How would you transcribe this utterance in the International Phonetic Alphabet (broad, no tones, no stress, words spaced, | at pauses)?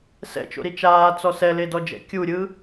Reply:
sɛ̰t͡ʃo̰ɾi t͡ʃaːt͡sɔ sɛledɔd͡ʒɛ̰ kʲuɾʲɯ